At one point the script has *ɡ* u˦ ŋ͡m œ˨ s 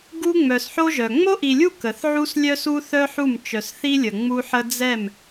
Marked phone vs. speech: correct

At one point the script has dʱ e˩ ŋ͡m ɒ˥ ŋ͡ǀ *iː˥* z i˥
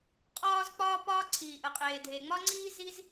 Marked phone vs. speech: correct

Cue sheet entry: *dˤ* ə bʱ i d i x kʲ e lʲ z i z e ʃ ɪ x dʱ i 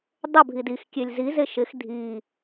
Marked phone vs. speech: correct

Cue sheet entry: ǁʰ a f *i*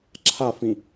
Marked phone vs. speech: incorrect: ĩ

